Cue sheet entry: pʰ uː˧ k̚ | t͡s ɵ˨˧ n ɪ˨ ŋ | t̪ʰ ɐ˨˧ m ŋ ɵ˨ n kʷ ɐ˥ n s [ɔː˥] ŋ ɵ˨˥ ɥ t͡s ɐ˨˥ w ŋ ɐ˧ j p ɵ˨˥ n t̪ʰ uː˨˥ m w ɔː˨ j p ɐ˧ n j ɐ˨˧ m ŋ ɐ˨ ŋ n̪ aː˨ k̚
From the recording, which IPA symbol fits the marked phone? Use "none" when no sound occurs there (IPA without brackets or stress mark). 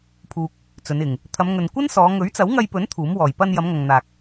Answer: ɔː˨˧